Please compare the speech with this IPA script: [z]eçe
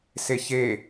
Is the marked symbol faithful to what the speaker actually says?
no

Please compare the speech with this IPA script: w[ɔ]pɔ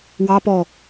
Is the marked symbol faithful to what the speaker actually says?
no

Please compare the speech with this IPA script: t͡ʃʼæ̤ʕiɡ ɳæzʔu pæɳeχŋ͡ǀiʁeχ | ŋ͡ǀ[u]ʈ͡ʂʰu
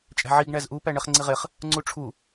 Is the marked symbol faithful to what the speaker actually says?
yes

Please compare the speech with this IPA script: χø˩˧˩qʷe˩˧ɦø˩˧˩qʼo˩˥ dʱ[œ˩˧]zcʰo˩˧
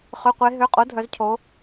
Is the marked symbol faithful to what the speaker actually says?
yes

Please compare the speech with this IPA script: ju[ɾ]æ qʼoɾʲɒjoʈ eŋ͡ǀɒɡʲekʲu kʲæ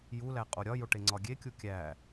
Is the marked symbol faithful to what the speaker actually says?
no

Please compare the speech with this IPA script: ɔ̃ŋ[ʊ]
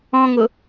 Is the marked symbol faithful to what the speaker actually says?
yes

